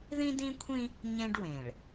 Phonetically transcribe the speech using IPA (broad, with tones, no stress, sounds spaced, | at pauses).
ð ĩ˦ d ĩ˦ kʷʰ ĩ˦ | ɲ ẽ˦ ɖ w ẽ˨ ɭ